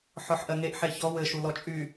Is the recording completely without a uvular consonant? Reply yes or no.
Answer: yes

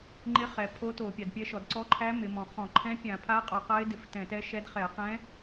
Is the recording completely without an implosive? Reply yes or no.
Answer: yes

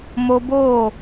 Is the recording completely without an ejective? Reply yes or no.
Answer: yes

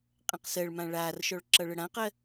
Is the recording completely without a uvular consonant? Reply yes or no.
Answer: no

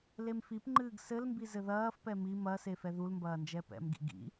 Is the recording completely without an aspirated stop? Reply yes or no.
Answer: yes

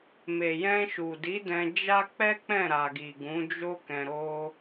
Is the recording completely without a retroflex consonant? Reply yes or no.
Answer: yes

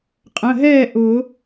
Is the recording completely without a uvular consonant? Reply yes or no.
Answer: no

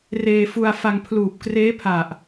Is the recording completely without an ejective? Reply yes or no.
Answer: yes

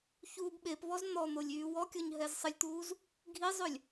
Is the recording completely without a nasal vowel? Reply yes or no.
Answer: yes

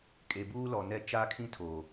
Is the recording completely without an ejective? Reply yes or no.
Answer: no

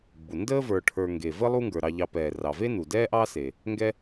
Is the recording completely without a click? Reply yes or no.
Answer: yes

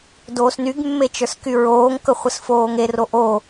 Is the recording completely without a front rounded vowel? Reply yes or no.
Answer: no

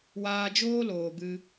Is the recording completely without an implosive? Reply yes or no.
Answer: yes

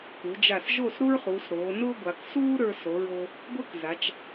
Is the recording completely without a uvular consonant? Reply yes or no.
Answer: no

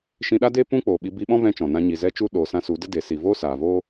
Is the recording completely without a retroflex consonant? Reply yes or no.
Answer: yes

